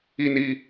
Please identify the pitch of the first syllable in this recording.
high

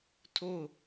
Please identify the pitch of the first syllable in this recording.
falling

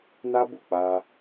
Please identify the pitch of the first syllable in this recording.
high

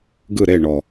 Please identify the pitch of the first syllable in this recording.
falling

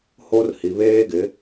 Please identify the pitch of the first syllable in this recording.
high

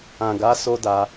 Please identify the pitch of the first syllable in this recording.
low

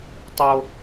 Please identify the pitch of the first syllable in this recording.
low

